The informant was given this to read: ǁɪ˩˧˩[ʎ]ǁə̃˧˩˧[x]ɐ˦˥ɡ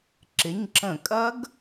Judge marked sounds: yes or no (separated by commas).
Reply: no, no